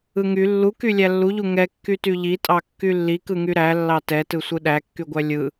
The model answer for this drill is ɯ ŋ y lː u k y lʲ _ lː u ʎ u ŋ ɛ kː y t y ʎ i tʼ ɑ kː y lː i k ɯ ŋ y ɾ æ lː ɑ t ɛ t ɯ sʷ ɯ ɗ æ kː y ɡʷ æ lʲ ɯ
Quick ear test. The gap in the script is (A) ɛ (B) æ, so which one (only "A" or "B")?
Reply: B